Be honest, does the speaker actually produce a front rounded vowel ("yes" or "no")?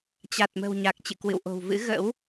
no